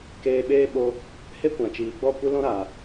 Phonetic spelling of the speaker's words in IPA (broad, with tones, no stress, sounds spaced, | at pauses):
k eː˧ ɓ eː˦ ɓ o˧ | h e˦ kʷ ã˨ t͡ʃ iː˨ ɡ͡b ɔ˦˨ kʷ ɨ˦ l ɔ̃˦ ɾ aː˨